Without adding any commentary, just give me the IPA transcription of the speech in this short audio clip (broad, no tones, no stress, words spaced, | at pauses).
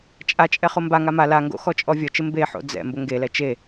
t͡ʃʼat͡ʃʼɛ χombaŋa ma laŋɡo̰ xɔt͡ʃʼɔvʲɔt͡ʃɪ mbeħo̰ d͡zɛ̰ mbʊŋɡelɛ t͡ʃe